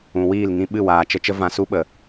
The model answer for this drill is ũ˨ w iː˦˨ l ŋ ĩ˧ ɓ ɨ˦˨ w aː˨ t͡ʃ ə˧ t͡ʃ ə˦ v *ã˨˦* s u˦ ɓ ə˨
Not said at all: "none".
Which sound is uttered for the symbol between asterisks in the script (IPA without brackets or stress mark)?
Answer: ã˧